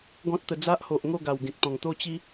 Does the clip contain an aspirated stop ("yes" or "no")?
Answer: no